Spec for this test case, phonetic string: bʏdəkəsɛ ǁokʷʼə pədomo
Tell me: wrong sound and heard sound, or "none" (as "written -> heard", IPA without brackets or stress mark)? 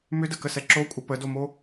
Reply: b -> m